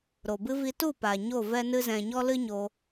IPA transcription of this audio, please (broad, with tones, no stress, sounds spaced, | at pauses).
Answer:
ɾ o˨ b ɨ˦ v i˧ t u˦˨ p aː˨ ɲ o˦˨ v ɛ˦ n ɨ˦ z ɛ̃˧ ɲ ɔ˦ l ɨ˦ ɲ o˧